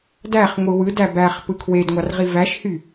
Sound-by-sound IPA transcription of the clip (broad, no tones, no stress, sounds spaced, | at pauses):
d æ χ ŋʷ ɯ w ɯ d æ b æ χ p ɯ kʰ w e d ŋʷ ɑ r ʁ i v æ ʃ h y